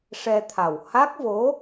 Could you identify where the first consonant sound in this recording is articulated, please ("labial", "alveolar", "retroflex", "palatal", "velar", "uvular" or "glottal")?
retroflex